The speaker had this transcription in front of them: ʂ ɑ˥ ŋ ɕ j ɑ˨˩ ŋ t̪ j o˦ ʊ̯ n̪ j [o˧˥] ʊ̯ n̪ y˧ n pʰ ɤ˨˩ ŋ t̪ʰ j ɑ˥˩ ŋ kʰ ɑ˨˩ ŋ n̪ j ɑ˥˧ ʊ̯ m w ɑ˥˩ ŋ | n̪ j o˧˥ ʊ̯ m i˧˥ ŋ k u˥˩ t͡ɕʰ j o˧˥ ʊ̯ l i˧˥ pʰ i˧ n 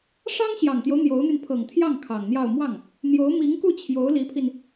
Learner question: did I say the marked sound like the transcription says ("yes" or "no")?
yes